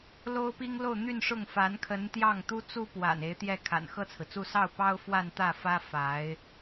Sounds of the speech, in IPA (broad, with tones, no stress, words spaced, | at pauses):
lo˥ʊ̯pi˥ŋlo˥˧ʊ̯ n̪y˥˧nʂʊ˥˩ŋfa˧˥n kʰə˧˥nt̪jɑ˥˩ŋt̪u˥t͡su˥ pwa̰˨˩n e˧˥ɪ̯t̪jɛ˥˩ kʰa̰˨˩nxɤ˥˩t͡sʰɹ̩˩t͡su˥˧ sɑ˥˩ʊ̯pɑ˥ʊ̯ fwa˥˧nt̪ä˥˩fä˥ fa˧˥ɪ̯